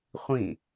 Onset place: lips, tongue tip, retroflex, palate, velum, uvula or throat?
uvula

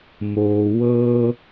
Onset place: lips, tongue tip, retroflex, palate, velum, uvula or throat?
lips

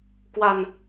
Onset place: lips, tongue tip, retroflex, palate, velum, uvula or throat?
velum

